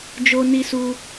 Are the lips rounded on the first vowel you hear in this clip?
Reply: yes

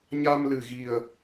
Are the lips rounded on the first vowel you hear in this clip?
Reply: no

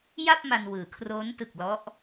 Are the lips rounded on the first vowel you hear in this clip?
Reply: no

